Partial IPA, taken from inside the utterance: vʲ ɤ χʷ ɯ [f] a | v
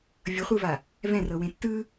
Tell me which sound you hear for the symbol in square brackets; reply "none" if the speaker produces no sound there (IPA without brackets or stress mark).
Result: v